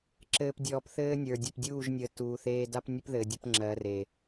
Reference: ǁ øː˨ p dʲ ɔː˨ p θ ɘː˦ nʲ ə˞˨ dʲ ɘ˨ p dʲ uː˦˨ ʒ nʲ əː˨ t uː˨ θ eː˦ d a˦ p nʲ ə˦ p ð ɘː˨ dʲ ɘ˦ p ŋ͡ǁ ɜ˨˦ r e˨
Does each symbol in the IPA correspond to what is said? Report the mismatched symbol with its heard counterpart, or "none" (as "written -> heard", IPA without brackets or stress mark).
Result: øː˨ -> ɘː˨